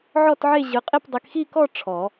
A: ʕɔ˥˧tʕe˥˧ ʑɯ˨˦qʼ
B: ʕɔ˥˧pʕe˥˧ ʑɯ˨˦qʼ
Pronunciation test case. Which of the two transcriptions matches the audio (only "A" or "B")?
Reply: A